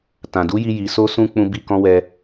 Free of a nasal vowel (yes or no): no